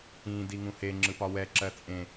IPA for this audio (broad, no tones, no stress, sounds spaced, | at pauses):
ĩ d i ŋ ũ h e ŋ͡ǁ ɯ p ɒ w ɛ ǁ ɜ t͡sʼ ẽ